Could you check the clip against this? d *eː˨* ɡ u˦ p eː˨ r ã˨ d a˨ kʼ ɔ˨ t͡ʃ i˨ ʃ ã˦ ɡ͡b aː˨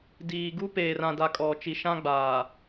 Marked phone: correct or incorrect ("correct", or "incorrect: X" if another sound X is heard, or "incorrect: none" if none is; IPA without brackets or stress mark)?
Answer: incorrect: iː˨